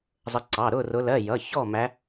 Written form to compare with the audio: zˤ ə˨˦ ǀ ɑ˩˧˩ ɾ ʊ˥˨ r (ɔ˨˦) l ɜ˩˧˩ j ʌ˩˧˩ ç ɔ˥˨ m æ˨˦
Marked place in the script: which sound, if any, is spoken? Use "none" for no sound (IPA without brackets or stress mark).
ʊ˨˦